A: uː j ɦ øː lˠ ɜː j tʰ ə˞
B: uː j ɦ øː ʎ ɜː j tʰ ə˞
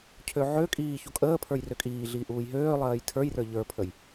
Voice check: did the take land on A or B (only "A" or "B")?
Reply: A